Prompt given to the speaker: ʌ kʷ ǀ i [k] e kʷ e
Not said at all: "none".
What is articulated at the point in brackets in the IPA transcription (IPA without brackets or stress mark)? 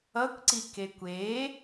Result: k